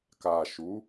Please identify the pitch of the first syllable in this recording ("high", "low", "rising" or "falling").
low